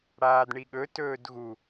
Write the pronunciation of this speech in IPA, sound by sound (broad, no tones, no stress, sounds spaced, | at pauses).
ɽ aː d ɳ i ɠ ɵ t ɵː d ɣ u